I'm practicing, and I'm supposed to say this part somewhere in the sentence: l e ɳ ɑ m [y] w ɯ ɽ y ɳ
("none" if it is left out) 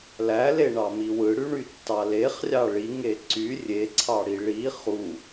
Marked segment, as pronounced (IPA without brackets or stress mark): i